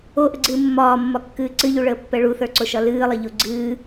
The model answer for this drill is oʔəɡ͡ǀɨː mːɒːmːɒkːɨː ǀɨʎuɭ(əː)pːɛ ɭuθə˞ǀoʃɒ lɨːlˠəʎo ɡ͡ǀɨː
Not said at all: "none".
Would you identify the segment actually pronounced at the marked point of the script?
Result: əː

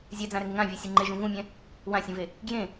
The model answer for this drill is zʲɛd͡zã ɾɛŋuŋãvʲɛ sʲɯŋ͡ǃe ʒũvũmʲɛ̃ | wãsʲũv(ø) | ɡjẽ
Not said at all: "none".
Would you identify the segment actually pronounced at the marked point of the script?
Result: e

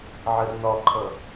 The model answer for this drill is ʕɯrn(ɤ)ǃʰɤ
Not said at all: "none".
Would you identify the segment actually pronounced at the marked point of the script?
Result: ɔ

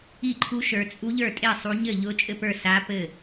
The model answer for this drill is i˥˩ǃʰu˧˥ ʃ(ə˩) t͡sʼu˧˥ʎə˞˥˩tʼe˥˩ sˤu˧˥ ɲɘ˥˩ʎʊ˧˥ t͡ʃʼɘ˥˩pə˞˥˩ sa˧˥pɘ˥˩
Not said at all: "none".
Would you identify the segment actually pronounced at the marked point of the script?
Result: ə˞˩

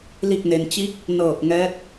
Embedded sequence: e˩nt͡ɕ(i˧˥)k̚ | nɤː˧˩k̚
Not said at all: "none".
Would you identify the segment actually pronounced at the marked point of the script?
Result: i˧˥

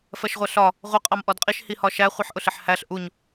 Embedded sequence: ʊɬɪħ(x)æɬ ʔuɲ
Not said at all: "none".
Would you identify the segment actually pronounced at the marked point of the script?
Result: h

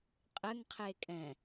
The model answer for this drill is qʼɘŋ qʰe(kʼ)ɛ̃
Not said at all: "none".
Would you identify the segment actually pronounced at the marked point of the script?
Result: kʼ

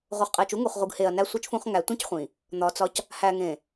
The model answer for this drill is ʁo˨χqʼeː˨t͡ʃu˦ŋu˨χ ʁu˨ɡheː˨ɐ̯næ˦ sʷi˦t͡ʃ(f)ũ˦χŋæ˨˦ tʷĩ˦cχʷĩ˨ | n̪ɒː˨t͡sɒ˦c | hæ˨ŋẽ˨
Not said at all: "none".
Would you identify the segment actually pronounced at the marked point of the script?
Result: f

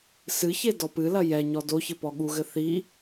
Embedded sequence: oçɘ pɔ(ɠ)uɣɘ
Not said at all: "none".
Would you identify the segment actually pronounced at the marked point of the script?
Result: ɠ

